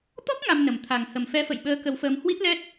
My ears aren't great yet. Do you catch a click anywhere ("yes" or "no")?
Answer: no